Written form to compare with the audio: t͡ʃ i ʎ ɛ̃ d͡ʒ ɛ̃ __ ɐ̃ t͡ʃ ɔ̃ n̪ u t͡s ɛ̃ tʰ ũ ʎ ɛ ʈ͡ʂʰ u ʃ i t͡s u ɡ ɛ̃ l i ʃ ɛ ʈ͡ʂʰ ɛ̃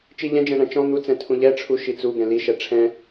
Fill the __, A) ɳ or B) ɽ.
A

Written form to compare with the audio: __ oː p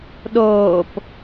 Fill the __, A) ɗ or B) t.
A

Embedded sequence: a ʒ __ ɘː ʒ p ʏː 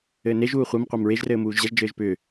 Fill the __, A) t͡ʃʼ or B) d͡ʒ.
B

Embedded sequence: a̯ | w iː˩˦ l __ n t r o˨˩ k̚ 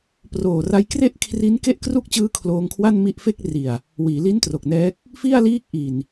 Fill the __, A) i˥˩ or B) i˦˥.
B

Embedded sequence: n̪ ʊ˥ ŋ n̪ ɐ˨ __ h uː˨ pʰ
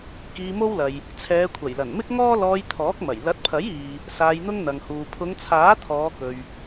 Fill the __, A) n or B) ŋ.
B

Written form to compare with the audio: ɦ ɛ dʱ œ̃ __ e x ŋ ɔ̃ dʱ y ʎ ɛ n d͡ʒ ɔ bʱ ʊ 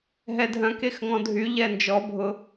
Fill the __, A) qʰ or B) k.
B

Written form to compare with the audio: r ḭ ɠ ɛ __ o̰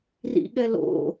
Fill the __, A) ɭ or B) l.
B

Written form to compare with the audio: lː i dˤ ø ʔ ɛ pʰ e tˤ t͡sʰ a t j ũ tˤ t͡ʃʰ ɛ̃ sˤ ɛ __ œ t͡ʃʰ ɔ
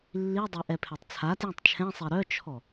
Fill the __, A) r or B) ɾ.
B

